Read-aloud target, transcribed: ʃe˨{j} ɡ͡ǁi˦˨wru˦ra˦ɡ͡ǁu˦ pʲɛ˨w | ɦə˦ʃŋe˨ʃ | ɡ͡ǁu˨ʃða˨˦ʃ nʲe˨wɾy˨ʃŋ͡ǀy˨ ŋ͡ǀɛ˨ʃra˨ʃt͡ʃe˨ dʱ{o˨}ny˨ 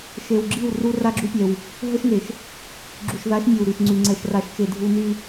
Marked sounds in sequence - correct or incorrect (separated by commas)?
incorrect, incorrect